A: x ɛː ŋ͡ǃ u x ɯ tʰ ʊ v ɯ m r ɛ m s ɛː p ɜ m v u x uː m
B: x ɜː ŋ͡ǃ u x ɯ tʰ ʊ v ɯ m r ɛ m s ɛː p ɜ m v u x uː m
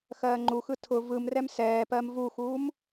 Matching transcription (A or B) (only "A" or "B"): B